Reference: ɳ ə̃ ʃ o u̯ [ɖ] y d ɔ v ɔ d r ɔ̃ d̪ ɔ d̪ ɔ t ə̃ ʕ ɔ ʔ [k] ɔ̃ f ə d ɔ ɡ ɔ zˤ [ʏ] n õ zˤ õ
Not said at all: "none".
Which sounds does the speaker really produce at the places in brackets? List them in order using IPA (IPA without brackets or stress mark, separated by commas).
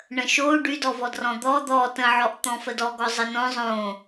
ɖ, t̪, ə